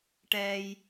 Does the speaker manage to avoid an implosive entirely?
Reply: yes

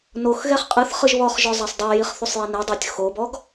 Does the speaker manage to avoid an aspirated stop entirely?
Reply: yes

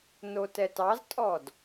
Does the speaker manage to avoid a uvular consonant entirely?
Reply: yes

